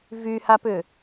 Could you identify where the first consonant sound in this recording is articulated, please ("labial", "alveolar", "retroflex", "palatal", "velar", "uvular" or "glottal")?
labial